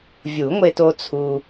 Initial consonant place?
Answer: labial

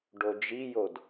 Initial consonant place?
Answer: retroflex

